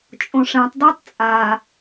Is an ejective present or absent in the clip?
present